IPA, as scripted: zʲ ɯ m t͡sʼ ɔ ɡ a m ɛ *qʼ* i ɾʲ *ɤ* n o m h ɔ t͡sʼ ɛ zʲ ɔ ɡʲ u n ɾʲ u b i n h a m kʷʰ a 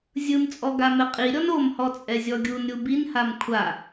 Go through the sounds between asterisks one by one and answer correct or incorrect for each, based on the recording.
correct, incorrect: ɔ

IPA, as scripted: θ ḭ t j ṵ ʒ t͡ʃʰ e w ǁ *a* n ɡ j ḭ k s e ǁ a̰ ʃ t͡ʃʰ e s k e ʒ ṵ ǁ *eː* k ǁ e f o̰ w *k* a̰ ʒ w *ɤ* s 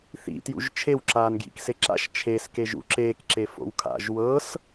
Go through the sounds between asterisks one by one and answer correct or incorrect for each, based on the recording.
incorrect: aː, correct, incorrect: kʰ, correct

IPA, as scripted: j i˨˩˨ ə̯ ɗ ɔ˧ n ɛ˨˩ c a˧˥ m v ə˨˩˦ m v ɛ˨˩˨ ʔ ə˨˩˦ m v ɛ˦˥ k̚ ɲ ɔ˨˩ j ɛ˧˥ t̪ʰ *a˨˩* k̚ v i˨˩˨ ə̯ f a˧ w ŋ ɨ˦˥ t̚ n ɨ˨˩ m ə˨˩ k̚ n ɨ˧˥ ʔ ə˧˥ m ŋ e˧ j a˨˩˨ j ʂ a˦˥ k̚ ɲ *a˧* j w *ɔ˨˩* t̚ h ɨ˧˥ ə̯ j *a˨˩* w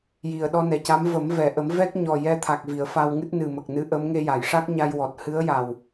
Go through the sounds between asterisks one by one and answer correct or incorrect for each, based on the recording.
correct, correct, correct, correct

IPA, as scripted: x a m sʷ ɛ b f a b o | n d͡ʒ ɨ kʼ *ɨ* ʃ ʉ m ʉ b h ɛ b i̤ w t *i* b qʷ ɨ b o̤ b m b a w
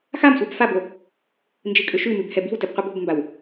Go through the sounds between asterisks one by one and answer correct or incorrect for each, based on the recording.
incorrect: ʏ, incorrect: ɨ

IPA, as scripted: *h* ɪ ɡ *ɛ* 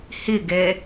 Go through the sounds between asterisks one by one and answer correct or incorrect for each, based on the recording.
correct, correct

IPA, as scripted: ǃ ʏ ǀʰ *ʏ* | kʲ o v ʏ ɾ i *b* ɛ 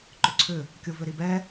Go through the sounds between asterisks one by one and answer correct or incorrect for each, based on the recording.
correct, correct

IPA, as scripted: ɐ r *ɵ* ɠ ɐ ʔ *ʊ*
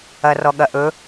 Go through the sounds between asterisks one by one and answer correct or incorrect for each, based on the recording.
incorrect: ɔ, incorrect: ɵ

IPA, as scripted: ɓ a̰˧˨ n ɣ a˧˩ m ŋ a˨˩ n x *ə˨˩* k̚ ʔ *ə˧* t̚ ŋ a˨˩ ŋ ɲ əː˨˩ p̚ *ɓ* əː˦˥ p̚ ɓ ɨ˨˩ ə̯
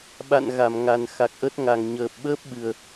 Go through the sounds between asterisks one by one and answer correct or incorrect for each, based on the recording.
incorrect: a˨˩, incorrect: ə˦˥, correct

